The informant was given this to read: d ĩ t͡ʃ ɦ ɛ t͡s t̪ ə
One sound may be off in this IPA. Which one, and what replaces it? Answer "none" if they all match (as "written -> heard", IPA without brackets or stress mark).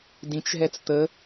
none